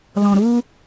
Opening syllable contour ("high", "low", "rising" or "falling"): low